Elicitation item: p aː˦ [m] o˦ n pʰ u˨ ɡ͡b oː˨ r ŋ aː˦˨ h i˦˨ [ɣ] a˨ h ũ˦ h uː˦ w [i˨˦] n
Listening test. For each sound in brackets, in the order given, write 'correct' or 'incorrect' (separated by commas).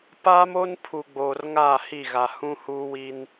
correct, correct, incorrect